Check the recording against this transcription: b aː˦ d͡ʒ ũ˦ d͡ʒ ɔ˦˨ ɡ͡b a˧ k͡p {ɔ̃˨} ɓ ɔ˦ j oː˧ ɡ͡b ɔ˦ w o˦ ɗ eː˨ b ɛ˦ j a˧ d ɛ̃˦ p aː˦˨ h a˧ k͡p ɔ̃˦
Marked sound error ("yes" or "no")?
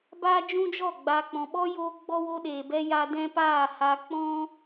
no